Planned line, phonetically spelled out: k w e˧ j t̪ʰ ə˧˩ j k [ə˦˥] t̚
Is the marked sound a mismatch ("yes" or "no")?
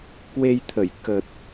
yes